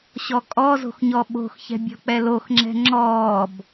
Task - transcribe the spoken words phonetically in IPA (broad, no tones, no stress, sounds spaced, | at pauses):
ɕ ɔ kʼ ɔ z o̤ x ɲ ɔ ɓ o̤ x ç ɛ̤ bʲ ɔ̤ k͡p ɛ l o x ŋ͡ǁ ɛ̤ ŋ͡ǁ ɔː b